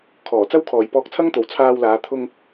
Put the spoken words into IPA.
kʰɔː˨˩t͡sɐ˥wkʰɔː˨j pɔː˧k̚t͡sʰɐ˥ŋt̪o˨w t͡sʰaː˧wlaː˨˧ t̪ʰʊ˧ŋ

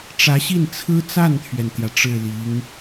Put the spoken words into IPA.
ʈ͡ʂä˧˥ɕi˥˩nt͡sʰɹ̩˥ t͡sa˥˩nt̪ʰɥɛ˩nt̪jä˩ ʈ͡ʂɻ̩˥˩li˧˥ŋ

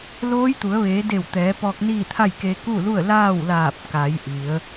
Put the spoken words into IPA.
loː˧˥jt̪u˩˧ə̯ ʋeː˩˧ de˧˩w t̪ɛː˩˧pɔː˧k̚niː˥˨t̪ʰa˥˨j ke˧ku˥˨lu˥˨ə̯ laː˥˨wlaː˧˩p̚ka˩˧j ʔi˩˧ə̯

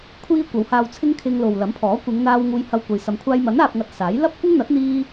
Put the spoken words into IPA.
kʷʰiː˧ kʷɐ˨˧whaː˧wt͡sʰɪ˥ŋ kʰɪ˧ŋlo˨w lɐ˨˥mpʰɔː˨˥ kʷɪ˨˧ŋn̪aː˧w ŋuː˧jhɐ˧wkʷɐ˨˧j sɐ˧m kʷʰaː˧jmɐ˨˥n aː˧p̚ŋɐ˧t̚saː˨˥j lɐ˥p̚kʷɪ˥ŋn̪ɐ˨˥t̚ n̪iː˥

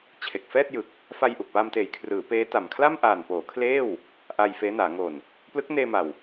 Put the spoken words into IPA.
t͡ɕʰe˨˩k̚ fɛː˥˩t̚jɯ˨˩k̚ | fa˧jʔu˨˩k̚pa˧mteː˨˩j kʰrɯː˩˦ peː˦˥ta˨˩m kʰla˥˩mʔaː˨˩npoː˩˦kʰleː˥˩w | ʔa˧jfeː˦˥naː˩˦ ŋo˨˩n | plɯ˦˥k̚neː˧ma˨˩w

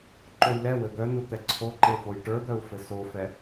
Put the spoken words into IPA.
ǃojlɛwɘ d̪œnu t̪ɛǀʰoǃe fojʈə˞d̪œu̯ fɘsofɛ

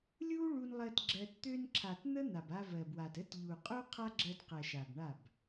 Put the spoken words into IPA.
lʲu˦ɭu˧nlˠɜ˧t ɡ͡ǁɜ˧t t̪ø˧nǁʰa˨t n̪ə˦n̪a˨b a˧vɜ˨bwa˨t ə˦t ʎu˨qʼu˦qʰa˦ɡ͡ǁɜ˧d qɜ˨ʃa˨b ɳa˦˨b

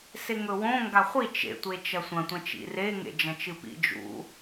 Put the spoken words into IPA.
seŋɵwõ ŋɡaχʷi t͡ʃḛ tʷet͡ʃɐsʷɐ̃ tʷɐ̃t͡ʃḭre ŋḛd͡ʒɐ̃t͡ʃɨpḭ d͡ʒṵ

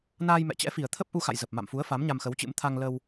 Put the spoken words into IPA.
naː˧jmɛ̰˧˨t͡ɕɛ̰˧˥fi˨˩ə̯ t̪ʰə˦˥p̚ʔu˧xa̰˧˨j zə˨˩p̚ma̰˧˨mfu˨˦ə̯ fa˨˦mɲa˧mxə˨˦wt͡ɕɨ̰˧˥m t̪ʰa˧ŋlə˧w

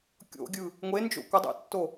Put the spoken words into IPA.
kʲo̰ɡʲɯ | ŋʷend͡ʒo̰ kʷədˤɛ̰tːo

